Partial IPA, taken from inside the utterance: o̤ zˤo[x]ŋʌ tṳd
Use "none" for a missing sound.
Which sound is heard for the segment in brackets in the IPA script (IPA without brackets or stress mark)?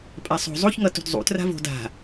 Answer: ç